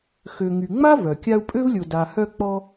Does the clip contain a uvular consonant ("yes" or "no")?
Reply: no